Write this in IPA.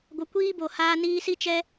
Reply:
ɡʷə˨kʷiː˦ bo˨haː˧niː˧si˦˨ t͡ʃɛ˧

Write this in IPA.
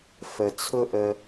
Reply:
fə˨t͡sʰʊ˦ ʔə˦

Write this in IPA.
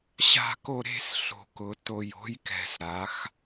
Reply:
ɕa̤˦˨ko˦˨ ɾe̤˦˨s ɬo̤˨˩kʊ˩˧ to˨˩jo̤˧˥jkɛ̤˨˩s ɾa˩˧x

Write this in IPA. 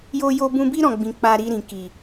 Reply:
jo˧jo˧bũ˧bi˦ ɾɔ̃˦˨ ɡ͡bĩ˨ k͡pa˧ɾi˧ɾĩ˨ki˨

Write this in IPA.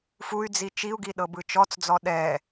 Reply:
fuy̯d͡zi t͡ʃiu̯ɡiɗɤbɯ t͡ʃɔt͡sd͡zɔ ɗɛ

